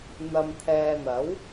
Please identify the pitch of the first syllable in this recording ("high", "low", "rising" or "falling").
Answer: low